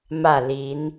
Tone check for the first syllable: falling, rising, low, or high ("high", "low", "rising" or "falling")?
falling